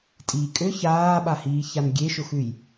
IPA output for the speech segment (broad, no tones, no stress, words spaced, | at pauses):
tʼiːkʼø çaːɓahiːçan ɡʲeʃʊxʉj